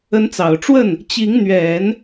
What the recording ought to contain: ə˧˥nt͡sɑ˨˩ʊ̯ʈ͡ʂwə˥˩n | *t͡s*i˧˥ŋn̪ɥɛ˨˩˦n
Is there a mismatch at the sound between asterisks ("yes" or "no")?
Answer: yes